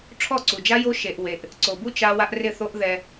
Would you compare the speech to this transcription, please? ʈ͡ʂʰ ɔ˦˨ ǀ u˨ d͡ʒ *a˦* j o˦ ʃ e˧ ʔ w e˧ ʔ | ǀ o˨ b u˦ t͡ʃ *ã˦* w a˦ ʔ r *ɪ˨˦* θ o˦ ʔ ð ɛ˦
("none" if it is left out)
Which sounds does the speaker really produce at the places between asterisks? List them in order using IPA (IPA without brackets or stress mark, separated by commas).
a˦, a˦, ɪ˦˨